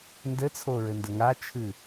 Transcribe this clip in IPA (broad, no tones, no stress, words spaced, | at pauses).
ndɘt͡sʰoɹɘ ndəŋat͡ʃʰɨ